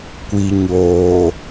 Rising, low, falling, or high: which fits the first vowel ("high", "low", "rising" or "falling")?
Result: low